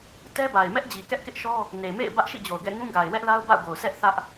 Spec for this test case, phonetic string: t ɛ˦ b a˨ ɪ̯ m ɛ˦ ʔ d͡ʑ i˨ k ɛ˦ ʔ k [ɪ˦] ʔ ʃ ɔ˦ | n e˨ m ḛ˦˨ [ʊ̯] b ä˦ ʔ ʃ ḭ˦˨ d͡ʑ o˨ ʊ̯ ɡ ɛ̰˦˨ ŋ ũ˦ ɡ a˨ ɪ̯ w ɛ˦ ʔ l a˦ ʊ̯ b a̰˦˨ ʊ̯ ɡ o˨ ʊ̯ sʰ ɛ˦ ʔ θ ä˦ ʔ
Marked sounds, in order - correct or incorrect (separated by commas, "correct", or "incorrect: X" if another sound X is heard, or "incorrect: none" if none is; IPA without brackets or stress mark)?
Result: correct, incorrect: ɪ̯